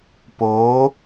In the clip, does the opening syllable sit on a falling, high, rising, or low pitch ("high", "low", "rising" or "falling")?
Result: rising